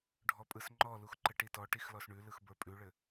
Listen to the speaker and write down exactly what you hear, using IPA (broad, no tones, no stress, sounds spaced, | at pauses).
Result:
ɖʱ ɔ pʼ ɯ s ŋ͡ǃ ɔ l u x ǃ ɘ ʈ i t ɔ ʈ i x l ɔ s ɳ ʉ l ɯ x b ə˞ pʼ ʉ ɭ ɘ